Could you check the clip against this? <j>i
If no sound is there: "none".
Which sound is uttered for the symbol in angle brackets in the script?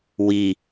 w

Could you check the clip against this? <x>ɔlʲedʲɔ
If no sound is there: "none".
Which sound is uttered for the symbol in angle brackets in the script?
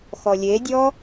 x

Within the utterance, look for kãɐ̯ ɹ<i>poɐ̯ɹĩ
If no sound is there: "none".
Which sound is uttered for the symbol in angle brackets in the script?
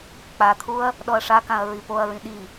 i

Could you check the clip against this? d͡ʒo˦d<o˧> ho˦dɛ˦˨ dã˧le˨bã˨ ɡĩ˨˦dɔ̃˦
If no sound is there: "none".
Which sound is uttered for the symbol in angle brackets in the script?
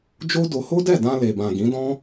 o˧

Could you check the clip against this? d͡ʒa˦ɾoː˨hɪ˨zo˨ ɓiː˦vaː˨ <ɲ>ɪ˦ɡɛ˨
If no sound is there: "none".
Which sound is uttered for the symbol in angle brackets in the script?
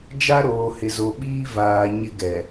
ɲ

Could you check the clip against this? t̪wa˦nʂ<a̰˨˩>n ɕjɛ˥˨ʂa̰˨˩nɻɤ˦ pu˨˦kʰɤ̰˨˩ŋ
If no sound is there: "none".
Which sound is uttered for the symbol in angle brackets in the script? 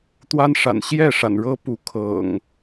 a̰˨˩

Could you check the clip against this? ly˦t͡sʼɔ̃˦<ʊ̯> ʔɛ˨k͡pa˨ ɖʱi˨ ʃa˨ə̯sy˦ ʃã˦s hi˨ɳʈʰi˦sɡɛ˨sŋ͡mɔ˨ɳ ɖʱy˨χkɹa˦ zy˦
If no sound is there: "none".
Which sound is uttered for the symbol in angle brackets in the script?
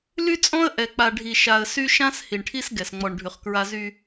ə̯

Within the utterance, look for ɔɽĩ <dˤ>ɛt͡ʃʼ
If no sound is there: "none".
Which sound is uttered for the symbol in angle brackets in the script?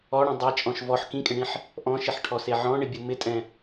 dˤ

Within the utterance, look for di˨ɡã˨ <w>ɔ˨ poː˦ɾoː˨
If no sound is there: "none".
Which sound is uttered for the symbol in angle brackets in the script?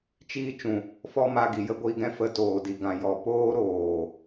j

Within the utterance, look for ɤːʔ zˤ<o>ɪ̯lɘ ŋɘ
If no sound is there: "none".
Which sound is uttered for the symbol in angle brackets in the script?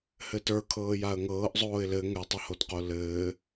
oː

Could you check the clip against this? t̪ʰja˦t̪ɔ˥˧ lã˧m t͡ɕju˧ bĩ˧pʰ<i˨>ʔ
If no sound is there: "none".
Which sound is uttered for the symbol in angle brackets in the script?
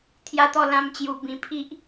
i˦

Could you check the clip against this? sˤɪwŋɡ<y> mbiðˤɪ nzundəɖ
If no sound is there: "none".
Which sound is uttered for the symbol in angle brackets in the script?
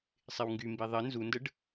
y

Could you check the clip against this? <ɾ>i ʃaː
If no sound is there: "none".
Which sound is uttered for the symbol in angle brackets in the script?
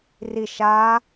r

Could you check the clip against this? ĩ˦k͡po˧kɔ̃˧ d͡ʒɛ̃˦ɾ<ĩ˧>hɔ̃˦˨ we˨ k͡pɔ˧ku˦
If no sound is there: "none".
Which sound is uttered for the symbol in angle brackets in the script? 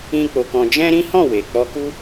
ĩ˦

